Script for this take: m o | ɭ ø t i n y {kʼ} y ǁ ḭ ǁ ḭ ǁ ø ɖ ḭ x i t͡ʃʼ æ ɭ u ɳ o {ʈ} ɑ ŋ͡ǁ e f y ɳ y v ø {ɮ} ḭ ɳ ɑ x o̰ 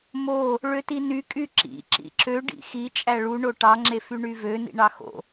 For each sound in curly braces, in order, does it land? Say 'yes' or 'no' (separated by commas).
yes, yes, no